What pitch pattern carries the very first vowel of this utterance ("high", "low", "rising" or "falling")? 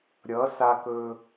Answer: rising